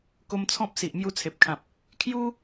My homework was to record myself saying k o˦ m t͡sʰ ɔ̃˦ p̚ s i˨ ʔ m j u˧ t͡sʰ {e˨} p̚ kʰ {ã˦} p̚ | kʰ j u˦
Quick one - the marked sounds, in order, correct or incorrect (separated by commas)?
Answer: correct, incorrect